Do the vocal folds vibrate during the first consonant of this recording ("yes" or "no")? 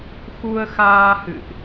no